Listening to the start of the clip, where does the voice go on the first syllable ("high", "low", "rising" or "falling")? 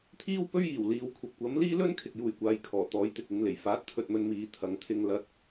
high